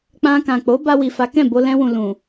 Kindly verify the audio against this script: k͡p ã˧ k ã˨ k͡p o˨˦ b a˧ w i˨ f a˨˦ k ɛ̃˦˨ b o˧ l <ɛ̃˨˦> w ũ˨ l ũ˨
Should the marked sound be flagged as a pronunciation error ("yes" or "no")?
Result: yes